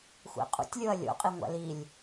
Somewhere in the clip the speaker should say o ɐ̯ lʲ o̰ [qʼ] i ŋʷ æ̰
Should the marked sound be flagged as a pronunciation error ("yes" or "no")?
no